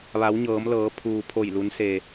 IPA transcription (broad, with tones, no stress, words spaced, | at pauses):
ʋa˩˧wɲɤː˩˧mlɤː˩˧ pʰuː˩pʰo˧˩jlu˩˧n se˩